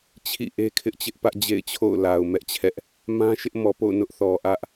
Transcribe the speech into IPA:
t͡ɕʰ ḭ˦˨ ʔ e˦ kʰ ɪ˦ ʔ t͡ɕ ɪ˦ ʔ p ä˦ ʔ d͡ʑ ḛ˦˨ ɪ̯ t͡ɕʰ o̰˦˨ ʊ̯ l a˨ ʊ̯ m ɛ˦ ʔ t͡ɕʰ ɛ˦ ʔ | m ã˦ ʃ ɪ˦ ʔ m ɔ˨ p o̰˦˨ ʊ̯ n ʊ˦ ʔ θ ɔ˨ ʔ ä˦ ʔ

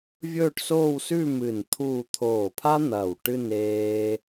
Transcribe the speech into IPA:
vʲ ɵː˥˧ ʈ s oː˥˧ w s ʉ˥˧ m ɨ˧˩ n t̪ʰ uː˥˧ t̪ʰ oː˧˩ pʰ a˥ n̪ ɐː˧˩ w ʈ ɨ˥˧ n eː˥

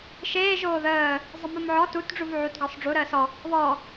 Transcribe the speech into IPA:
ʃ eː ʒ oː ð əː | zˤ ɪ m u m ʕ ɔ t u t ɖ͡ʐ u v ʕ u t ɡ ɔ sˤ ɖ͡ʐ u ɾ əː s ɔ | β ɔ

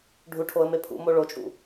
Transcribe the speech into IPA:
ɖʱ u ʈʰ o ə̯ m e pʰ ṵ m o ɭ o t͡ʃʼ ṵ

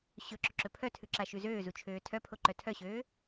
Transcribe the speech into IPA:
ɕ ɵ ǁ ɵ ǁ ɵ pʰ œ tʰ ʉ ǁ a ʃ ʉ z øː z u t͡ʃʰ øː tʰ œ pʰ o ǃ œ tʰ œ ɕ øː

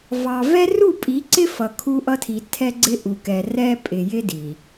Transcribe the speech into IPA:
v ɑ˨ v ɛ˦ r u˦˨ pʼ i˨˦ ǀ ɪ˦ f ʌ˨ kʰ u˦ ʔ ʌ˦ tʰ i˨ tʰ ɛ˦ ɡ͡ǀ ɪ˦ ʔ u˨ k ɛ˨ r ɛ˦ pʼ ɪ˨ j ɪ˦ d i˨

